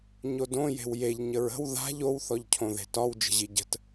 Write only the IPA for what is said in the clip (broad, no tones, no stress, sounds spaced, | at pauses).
ɲ o d õ j e̤ w j e ʎ ɲ ə ɹ ə̤ w ð a̤ ʎ o w θ ɔ ʎ cʰ õ ð e̤ t ɒ w d͡ʒ ə̤ ʑ i ɟ ə̤ t